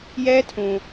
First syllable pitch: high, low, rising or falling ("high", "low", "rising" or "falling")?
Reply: high